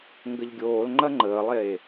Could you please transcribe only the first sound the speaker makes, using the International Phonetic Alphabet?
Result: ŋ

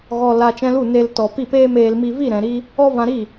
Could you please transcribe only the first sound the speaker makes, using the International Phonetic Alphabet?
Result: ɣ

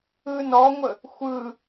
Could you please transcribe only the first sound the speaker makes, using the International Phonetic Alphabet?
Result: ɯ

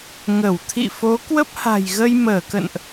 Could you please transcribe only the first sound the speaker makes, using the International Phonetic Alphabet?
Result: ŋ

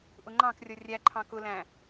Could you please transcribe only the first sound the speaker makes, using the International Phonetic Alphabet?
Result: ʔ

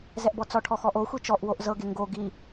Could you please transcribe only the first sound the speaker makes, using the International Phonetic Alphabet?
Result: z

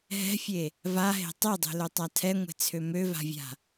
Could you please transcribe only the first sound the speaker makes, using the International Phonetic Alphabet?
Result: ɦ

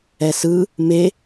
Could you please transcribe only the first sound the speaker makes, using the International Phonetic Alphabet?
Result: ɛ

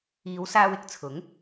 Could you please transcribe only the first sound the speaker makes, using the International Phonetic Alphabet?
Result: iː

